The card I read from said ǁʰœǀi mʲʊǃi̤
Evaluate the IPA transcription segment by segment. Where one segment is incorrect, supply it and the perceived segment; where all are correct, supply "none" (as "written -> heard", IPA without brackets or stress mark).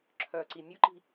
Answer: none